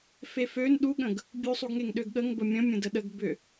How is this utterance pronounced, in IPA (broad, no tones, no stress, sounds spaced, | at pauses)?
f e f ø n ɗ u ɠ ə̃ ɡ | bʲ u sˤ u ɡ ŋ e ŋ ɗ ø ɡ ɠ ə ŋ b ə mʲ ə̃ mʲ ə̃ d ə ɗ ə ɡ b ʏ